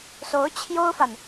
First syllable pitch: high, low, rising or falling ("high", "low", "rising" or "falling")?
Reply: rising